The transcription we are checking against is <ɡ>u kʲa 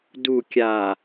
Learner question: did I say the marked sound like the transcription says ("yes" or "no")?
no